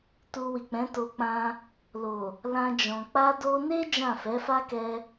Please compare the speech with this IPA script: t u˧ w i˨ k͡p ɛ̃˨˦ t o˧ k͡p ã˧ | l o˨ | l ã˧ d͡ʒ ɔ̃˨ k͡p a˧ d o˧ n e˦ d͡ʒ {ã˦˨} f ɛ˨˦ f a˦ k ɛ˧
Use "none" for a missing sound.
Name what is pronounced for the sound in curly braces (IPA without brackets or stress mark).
ã˦˨